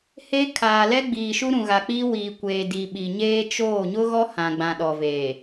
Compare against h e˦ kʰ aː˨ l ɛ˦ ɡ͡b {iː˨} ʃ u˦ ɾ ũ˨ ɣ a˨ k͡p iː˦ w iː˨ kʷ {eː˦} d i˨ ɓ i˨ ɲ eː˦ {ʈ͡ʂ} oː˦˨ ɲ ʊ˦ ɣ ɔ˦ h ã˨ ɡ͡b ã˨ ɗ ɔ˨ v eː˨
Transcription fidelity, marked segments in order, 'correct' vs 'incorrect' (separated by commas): correct, incorrect, incorrect